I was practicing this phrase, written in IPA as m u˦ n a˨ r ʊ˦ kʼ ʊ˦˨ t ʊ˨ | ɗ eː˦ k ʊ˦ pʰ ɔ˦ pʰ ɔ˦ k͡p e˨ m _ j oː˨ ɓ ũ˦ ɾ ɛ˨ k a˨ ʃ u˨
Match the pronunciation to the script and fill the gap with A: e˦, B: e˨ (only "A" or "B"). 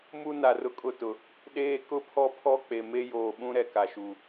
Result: A